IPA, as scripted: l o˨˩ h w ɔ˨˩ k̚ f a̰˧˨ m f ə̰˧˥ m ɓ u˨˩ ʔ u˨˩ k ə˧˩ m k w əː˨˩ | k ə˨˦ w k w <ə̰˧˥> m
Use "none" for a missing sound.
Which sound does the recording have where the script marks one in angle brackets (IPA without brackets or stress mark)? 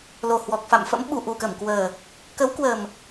ə˨˩